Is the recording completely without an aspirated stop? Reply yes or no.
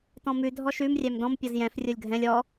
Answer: yes